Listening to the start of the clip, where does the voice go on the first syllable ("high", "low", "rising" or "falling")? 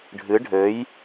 rising